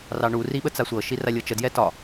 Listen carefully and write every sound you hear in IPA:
r ɑ ɳ u r i ɓ ə t͡s a sʷ ɤ ʃ i r a lʲ ɤ t͡ʃ ə d j ɛ t ɒ

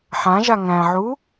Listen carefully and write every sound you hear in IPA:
ħ ã ʒ a ŋ æ̃ ʕ u

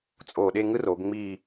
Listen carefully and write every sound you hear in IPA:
t͡sʼ o˧˩ ɗ e˥˧ ŋ ɯ˥ r o˩˧ ɡ ŋ͡m i˥˧

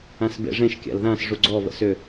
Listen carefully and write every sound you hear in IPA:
ã s b ḛ ʐ ẽ ʃ kʲ a̰ l ð ã s ʐ u ɡ͡ǀ ɔ β ə̰ s ʏ

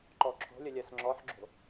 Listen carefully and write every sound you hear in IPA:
ǃ ɔ ǁʰ o̤ lʲ ə lʲ ɜ s ŋ͡ǁ ɔ ħ ɡ͡ǁ o̤

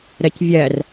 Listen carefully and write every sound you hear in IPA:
ɾ ɜ c vʲ ɜ r

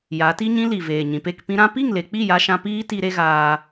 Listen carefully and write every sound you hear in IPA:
j a˨˦ t i˦ ɲ ĩ˦ l i˨ v eː˨ ɲ ĩ˨ p e˦˨ k p ĩ˧ ɾ ã˦ p i˦˨ ŋ l e˨ k͡p i˦˨ j a˧ ʃ ã˧ p iː˦ t i˧ ɾ e˦ ɣ aː˧

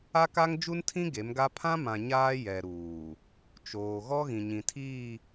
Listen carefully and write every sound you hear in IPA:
a˦ k a˦ ŋ d͡ʒ u˦ n tʰ ĩ˦ ɡ e˨˦ m ɡ a˦ pʰ ã˦ m ã˨ ɲ aː˦ j ɛ˨ ɾ uː˨ | t͡ʃ oː˨ ɣ ɔ˦ ɣ ĩ˨ ɲ ĩ˨ tʰ iː˦˨

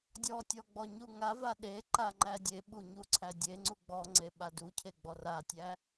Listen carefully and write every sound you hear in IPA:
dʲ ɔ tʲ ɔ ɡ͡b ɔ ɲ u ŋ a v a ɗ e ǃ a ŋ͡ǃ æ dʲ e ɓ u ɲ u ǀʰ æ dʲ e ŋ͡ǀ u ɡ͡b ɔ ŋ͡ǀ e ɓ a d u cʰ e ɡ͡b ɔ r a tʲ æ

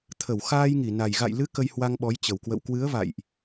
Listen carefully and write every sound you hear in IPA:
t̪ʰ ə˧˩ w x aː˧ j ŋ i˧˩ n a˨˩ j ɣ a̰˧˨ j l ɨ˨˦ k ə˧ j h w a˧ ŋ ɓ ɔ˨˦ j t͡ɕ ə˨˩ w k w ə̰˧˨ w k w ɨ˨˦ ə̯ v a̰˧˨ j ʔ

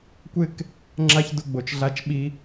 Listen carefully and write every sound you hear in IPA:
kʷ ɪ˥ k | ŋ͡ǁ a˥ ç d ʊ˥ ɡ͡b o˧ t͡ʃ ɮ a˥ t͡ʃ ɓ i˥

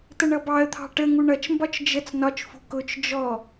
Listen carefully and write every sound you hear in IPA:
t ə ɳ ʌ b ɑ ə̯ t̪ʰ ɑ̤ ʈ ə ŋ u ɳ ʌ t͡ʃ m b ɒ t͡ʃ d͡ʒ ə t͡s n ɒ t͡ʃ f ṳ k ʊ t͡ʃ d͡ʒ ɔ

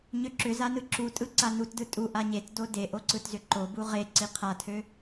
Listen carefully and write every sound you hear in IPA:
ɲ ø ǁ ʏ z a n ɯ ǁ u tʼ ɯ ǀ a n u t d ɯ tʼ u ʔ a ɲ e t d o d e ʔ o ǀ ɯ t z ʏ ǃ o b u ʁ e ǀ i qʰ a tʰ ø

